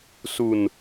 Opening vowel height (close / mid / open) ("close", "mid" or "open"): close